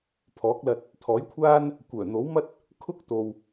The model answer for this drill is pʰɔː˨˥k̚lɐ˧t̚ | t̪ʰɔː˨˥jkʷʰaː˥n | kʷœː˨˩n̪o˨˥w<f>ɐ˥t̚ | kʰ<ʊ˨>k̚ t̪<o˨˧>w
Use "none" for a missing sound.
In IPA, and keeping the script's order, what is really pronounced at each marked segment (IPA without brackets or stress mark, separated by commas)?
m, ʊ˥, o˨